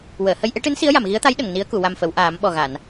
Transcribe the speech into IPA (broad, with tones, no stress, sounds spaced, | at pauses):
w əː˨˩˨ h ə˧ j ʔ e˧˥ ʈ ɨ˧˥ n s i˧˥ ə̯ j a˨˩˨ m ɣ i˧˥ ə̯ t̪ a˧˥ j ɗ ə˨˩˨ ŋ n i˧˥ ə̯ k u˨˩˨ w a˨˩ m f ə˨˩˨ w ʔ aː˨˩˦ m ɓ ɔ˨˩ ɣ a˨˩˨ n